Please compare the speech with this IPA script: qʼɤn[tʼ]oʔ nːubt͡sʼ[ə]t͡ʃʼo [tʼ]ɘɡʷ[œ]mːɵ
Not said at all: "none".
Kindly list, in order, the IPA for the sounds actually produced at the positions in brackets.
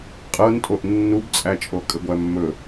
tʼ, æ, kʼ, æ

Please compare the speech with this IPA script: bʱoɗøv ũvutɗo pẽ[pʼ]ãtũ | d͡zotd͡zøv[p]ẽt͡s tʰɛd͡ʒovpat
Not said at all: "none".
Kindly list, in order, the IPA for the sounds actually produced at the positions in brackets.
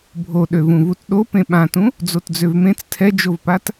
ɓ, m

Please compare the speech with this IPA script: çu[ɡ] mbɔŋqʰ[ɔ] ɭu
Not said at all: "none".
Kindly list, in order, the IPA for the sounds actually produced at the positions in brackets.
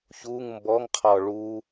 ŋ, ɔ

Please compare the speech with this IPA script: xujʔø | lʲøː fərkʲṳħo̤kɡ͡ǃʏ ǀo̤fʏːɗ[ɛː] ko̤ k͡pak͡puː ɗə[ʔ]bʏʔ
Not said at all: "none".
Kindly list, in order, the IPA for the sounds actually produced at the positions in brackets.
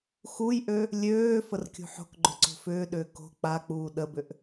ʏː, none

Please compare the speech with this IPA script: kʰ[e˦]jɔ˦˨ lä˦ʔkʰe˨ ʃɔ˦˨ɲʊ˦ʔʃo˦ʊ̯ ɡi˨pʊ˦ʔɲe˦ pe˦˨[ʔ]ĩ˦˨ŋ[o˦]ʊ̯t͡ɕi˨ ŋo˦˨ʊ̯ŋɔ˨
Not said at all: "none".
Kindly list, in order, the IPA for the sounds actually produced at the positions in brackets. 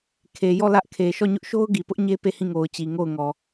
e˨, h, o˨

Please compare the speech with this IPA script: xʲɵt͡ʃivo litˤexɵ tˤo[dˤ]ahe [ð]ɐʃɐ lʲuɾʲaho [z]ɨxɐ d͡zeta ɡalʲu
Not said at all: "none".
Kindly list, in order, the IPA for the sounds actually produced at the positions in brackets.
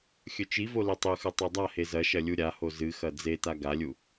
dˤ, z, z

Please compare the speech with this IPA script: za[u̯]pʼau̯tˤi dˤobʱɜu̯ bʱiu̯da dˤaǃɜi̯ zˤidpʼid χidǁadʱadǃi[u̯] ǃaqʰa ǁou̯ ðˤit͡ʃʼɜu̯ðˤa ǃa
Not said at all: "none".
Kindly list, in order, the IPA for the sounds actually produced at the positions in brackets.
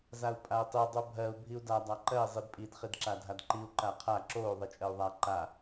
u̯, u̯

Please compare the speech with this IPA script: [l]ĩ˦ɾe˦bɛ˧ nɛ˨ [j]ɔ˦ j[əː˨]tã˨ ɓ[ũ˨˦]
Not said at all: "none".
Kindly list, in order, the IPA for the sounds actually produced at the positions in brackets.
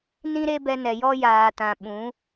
n, j, aː˨, ũ˨˦

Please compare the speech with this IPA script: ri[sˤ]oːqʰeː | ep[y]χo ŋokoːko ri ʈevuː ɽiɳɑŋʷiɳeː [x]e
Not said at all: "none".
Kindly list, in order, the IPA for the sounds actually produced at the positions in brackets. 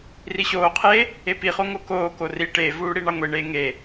ɕ, i, ŋ

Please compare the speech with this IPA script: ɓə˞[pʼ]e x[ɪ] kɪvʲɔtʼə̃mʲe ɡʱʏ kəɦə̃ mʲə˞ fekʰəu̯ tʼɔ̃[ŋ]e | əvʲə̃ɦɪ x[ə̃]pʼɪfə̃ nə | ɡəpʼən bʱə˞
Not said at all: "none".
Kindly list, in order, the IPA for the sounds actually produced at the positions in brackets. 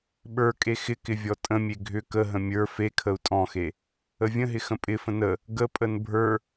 kʼ, ɪ, x, ə̃

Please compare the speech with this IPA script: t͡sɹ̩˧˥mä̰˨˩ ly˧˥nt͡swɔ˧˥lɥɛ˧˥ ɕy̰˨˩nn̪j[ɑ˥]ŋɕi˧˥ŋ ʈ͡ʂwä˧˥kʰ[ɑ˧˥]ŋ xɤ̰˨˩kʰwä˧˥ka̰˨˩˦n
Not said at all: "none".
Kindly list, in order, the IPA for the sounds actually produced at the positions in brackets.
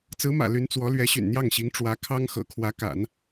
ɑ˥˩, ɑ˥

